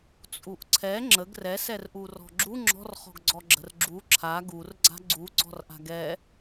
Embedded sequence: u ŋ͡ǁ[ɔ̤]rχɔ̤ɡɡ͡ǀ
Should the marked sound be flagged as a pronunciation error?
no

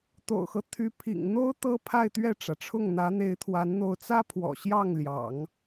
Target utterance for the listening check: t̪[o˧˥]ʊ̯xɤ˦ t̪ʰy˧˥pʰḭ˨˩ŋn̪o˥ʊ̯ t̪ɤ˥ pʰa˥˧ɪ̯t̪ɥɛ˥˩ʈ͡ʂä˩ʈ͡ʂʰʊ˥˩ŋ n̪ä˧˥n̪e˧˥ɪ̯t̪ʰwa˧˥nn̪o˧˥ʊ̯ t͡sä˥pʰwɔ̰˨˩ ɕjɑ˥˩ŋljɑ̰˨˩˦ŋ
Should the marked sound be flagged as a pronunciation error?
yes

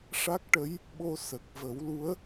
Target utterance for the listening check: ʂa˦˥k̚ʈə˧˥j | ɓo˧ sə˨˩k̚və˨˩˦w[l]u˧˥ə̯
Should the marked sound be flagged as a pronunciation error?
no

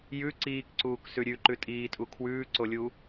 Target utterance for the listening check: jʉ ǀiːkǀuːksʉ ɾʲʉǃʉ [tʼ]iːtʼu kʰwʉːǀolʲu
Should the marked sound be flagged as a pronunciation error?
no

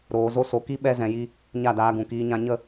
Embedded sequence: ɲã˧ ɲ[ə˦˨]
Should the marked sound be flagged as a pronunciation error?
no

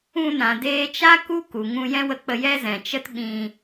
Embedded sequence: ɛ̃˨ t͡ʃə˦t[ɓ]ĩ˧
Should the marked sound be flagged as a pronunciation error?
no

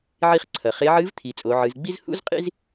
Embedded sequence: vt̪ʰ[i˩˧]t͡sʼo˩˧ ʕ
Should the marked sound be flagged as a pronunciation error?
no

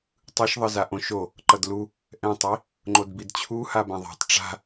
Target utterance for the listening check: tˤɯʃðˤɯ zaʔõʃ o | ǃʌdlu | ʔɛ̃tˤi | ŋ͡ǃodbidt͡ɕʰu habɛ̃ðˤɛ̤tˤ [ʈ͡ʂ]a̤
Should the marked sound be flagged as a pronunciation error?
no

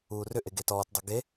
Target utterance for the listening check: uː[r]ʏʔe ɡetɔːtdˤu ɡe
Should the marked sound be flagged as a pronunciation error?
no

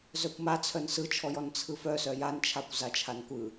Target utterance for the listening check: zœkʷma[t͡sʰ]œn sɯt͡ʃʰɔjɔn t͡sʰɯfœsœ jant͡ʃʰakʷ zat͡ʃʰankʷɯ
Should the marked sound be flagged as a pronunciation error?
no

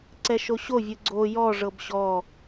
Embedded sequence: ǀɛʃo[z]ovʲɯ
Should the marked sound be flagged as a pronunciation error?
yes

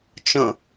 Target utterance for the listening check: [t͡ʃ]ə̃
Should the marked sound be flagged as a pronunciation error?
no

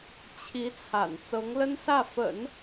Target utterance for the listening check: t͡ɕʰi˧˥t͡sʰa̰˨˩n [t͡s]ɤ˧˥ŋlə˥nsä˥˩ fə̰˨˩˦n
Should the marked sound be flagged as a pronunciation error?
no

